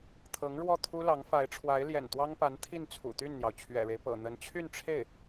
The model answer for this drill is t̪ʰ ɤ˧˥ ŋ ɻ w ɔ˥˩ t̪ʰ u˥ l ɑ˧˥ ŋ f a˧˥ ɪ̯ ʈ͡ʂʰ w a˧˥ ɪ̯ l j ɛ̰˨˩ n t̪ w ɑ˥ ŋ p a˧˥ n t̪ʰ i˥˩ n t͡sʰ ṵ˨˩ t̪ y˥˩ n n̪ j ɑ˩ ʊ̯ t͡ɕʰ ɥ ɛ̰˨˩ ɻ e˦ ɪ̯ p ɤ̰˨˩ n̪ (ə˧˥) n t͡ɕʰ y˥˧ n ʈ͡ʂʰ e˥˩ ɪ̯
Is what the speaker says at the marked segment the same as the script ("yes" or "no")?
yes